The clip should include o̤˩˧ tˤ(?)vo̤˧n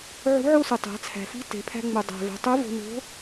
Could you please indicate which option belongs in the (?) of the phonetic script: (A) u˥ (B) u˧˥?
B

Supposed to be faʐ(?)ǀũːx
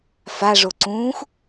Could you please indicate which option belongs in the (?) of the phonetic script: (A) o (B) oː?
A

